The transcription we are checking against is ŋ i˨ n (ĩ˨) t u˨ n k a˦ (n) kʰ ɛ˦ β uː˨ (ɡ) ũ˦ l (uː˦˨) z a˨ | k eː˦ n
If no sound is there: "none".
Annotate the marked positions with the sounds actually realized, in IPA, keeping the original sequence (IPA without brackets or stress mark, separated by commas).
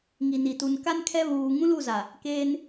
i˨, n, ŋ, u˦˨